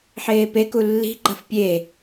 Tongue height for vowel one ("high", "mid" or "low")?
mid